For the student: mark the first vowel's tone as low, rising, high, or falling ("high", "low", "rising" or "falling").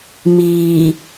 low